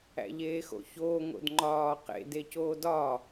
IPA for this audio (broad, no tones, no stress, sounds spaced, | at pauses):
æ̰ ʎ eː x o̰ ç oː ŋ o̰ d ŋ͡ǃ ɒː q ḛ d e c oː d ɒː